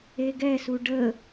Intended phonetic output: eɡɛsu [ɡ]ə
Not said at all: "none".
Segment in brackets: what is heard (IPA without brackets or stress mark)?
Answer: ɖ